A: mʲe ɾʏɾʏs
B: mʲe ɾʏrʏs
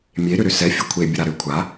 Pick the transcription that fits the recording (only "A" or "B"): A